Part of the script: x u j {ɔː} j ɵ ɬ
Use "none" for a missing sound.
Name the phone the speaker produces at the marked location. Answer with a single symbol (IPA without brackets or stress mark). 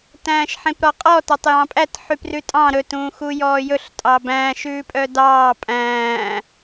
ɔː